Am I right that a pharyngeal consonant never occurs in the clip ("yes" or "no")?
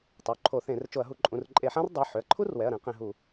no